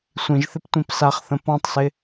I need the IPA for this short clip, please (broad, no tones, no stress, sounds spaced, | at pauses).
sʷ ĩ ʒ θ ɪ p tʷ ĩ p s a χ θ ə̃ p ɔ̃ tˤ s ɪ